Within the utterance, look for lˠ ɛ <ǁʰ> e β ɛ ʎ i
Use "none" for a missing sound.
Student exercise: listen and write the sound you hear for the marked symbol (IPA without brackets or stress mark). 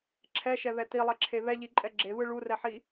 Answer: ǁʰ